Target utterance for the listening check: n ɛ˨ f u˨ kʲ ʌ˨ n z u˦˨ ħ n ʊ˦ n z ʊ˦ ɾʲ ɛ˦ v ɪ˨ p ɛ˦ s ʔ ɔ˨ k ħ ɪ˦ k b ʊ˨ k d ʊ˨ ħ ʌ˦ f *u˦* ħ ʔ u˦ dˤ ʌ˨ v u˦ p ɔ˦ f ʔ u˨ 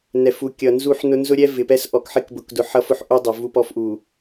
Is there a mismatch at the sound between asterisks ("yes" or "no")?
yes